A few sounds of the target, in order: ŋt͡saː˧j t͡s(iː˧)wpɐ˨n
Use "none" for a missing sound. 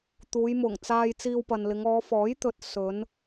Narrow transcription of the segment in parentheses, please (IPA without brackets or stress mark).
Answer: iː˧